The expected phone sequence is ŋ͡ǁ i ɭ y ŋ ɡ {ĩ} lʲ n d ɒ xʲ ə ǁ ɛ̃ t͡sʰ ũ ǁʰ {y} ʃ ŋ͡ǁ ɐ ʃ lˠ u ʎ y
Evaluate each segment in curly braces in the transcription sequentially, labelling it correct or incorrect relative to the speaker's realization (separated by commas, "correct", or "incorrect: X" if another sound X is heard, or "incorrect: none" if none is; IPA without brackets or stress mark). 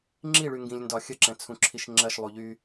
correct, incorrect: i